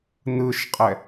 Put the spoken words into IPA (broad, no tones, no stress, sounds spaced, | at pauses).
n ɯ ʃ qʼ ɛ